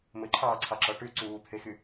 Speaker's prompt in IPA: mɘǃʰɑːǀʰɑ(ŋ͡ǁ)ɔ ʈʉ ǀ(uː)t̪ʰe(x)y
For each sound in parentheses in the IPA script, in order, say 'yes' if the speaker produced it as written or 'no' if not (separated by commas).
no, yes, yes